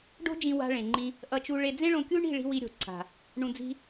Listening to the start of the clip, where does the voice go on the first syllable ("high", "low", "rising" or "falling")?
high